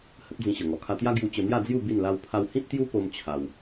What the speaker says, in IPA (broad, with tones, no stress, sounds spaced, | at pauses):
h ə˦ p̚ d͡z ĩ˧ ɕ ə˨˩ ŋ ɔ˨˩ kʰ a˧ t̪ j a˦ ɡ j u˧ t͡ɕ ə˧ n̪ j a˥˧ d͡z j u˥˧ b i˥˧ n l a˦ w pʰ a˦ w h ĩ˦ p̚ t̪ j u˦ p o˦ m t͡ɕʰ a˧ w